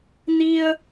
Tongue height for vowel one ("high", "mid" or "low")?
high